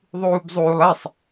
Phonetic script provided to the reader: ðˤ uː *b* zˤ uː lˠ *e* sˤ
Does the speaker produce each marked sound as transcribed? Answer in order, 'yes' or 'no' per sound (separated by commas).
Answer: yes, yes